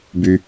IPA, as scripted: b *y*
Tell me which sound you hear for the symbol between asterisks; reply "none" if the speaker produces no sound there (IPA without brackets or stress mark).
y